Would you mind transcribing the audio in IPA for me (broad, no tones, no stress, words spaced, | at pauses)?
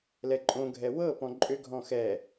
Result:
lɛǃʼõɡʱɛ wɤpɔ̃ ǃʼʏɡʱɔ̃ xɛ